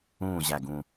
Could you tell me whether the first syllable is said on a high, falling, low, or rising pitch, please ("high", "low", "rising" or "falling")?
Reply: falling